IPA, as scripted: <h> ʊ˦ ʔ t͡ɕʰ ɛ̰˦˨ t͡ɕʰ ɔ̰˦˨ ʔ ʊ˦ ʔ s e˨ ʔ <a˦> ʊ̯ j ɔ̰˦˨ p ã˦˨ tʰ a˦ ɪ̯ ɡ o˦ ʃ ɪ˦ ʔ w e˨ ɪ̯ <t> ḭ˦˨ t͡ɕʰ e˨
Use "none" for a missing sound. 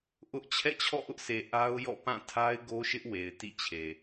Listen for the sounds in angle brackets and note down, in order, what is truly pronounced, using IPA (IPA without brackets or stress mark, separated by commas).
ʔ, a˦, t